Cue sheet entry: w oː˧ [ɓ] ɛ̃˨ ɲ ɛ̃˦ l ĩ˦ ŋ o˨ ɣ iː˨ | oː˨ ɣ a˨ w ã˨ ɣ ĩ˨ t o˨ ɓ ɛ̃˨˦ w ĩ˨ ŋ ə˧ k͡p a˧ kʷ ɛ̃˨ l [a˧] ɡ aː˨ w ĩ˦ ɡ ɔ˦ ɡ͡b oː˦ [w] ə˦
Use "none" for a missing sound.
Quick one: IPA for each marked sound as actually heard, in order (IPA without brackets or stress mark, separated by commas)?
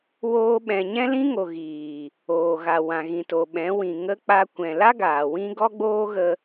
ɓ, a˦, ɣ